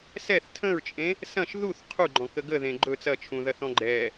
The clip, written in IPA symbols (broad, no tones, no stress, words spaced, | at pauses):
sɛθ tʰə̃ɹt͡ʃʼẽ | sɐ̃ʃ ðuθ qʰuɡ͡ǃɔ̃kə ɡəðẽ ɡ͡ǃɵ t͡sɐt͡ʃʰũðɐθɔ̃ ɡ͡ǃɛ